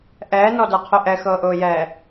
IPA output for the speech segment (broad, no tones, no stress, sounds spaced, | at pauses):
ʔ ɛː n ɔ d ə˞ qʰ u ʔ ɛ x ɤː ʔ ʊː j ɛː